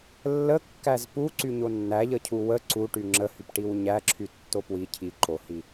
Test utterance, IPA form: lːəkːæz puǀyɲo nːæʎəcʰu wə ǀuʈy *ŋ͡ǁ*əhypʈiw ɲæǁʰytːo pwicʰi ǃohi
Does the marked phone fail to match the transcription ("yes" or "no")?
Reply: no